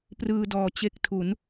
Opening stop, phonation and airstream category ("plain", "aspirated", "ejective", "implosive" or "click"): plain